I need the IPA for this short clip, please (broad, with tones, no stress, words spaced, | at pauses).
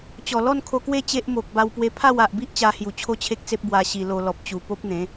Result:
t͡ɕɔ˨˩ lɔ˥˧nkʰo˧kwe˦ t͡ɕe˦ʔmo˨k̚ ba˧wpwe˧ pʰa˥˧wa˨ʔbi˦ʔ t͡ɕa˧hju˨˩ t͡ɕʰo˦t͡ɕʰe˦k̚t͡se˦p̚ bwa˧ɕi˧lo˧ lɔ˨p̚t͡ɕu˨˩po˦p̚n̪ẽ˨˦